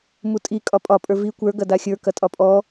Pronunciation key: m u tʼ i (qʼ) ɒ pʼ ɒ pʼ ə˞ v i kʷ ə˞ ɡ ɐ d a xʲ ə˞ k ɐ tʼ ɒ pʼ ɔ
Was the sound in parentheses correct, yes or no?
no